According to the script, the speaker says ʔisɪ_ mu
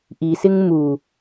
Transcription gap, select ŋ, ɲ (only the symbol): ŋ